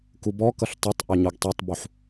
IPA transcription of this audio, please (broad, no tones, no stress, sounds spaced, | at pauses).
k u b ɔ k ʌ ɬ tˤ œ tˤ ʔ œ ɲ o ɡ tˤ ø tˤ b u ħ